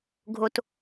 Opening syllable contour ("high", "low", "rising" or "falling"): low